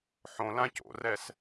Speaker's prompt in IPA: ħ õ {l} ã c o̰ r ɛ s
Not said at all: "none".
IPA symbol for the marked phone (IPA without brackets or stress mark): l